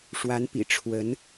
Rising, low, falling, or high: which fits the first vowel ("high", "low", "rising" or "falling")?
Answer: rising